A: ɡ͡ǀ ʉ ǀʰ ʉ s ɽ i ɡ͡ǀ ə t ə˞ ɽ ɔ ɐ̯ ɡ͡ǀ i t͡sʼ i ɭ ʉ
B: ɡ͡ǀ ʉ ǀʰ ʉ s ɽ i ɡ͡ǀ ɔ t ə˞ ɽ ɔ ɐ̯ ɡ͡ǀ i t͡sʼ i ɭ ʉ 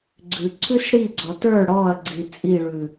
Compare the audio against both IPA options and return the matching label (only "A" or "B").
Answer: B